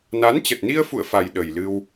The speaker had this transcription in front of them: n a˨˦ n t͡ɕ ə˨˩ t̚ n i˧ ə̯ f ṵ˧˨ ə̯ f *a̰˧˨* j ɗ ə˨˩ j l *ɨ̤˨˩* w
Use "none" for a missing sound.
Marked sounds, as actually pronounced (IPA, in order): a˨˩, ɨ˧

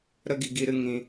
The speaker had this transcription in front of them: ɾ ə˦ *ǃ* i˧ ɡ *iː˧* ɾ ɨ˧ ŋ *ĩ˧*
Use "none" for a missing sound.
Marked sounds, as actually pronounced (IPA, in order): ɡ, i˧, ĩ˧

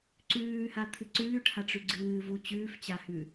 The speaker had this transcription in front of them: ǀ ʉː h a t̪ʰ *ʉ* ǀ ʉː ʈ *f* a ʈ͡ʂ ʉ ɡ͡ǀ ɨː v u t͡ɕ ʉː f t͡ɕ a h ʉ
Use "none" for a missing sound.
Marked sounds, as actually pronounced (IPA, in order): ɨ, h

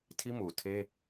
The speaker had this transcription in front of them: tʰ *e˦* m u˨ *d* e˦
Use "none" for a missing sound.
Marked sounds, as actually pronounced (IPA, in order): i˦, tʰ

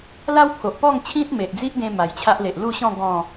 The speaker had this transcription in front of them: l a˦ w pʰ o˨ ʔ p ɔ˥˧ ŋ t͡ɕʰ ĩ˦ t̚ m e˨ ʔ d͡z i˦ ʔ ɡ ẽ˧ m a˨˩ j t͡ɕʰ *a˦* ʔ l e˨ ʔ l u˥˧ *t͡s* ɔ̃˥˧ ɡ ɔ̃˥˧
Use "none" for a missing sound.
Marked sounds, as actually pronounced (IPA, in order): a˦, ɕ

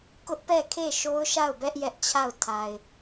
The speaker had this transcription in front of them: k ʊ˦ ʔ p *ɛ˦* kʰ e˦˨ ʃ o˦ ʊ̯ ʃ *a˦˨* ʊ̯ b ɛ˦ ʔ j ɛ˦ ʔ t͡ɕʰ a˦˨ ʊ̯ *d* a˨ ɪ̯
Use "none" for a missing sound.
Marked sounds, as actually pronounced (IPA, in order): ɛ˦˨, a˦˨, tʰ

